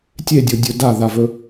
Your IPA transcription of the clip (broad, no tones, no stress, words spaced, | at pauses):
tʲedʲodʲɵ daðavɵ